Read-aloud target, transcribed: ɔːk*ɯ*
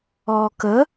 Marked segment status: incorrect: ə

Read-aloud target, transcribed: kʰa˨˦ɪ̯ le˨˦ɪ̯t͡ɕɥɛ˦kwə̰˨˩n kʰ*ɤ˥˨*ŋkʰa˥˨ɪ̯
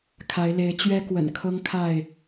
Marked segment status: incorrect: ɤ˦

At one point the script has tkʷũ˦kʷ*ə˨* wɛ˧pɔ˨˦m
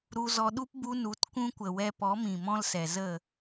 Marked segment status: correct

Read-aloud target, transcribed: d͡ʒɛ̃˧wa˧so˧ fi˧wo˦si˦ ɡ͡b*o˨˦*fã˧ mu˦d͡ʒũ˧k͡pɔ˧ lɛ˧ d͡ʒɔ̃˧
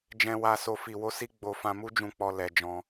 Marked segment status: incorrect: o˧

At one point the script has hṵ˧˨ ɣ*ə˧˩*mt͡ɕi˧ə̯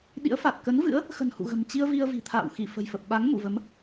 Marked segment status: incorrect: ə̤˨˩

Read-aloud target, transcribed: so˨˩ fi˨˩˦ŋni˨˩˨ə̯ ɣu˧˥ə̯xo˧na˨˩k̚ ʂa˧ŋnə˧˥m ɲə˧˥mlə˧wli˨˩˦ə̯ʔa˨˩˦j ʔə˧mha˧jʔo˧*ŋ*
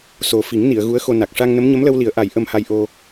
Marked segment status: incorrect: none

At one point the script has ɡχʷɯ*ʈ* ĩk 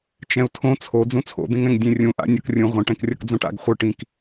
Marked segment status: correct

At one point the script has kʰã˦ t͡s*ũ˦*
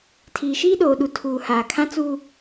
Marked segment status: incorrect: u˦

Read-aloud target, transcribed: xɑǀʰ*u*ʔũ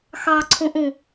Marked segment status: incorrect: ũ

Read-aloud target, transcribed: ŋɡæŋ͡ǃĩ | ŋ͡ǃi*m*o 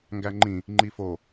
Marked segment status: incorrect: f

